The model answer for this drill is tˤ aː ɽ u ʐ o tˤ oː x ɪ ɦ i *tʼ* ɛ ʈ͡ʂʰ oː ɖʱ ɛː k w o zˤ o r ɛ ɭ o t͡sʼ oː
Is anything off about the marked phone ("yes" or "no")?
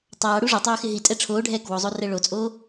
no